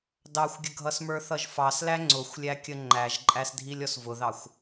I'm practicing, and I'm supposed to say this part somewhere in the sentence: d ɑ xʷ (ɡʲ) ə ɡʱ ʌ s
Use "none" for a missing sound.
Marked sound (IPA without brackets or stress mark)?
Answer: ɡʲ